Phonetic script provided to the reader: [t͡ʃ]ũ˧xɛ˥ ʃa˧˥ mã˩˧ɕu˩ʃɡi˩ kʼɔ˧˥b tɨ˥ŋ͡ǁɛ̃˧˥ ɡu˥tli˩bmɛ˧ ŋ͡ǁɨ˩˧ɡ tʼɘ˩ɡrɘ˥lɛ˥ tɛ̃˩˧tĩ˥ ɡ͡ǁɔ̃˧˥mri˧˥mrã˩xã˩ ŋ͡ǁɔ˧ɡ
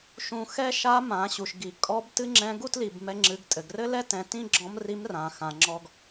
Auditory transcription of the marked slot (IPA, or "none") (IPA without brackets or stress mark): ʃ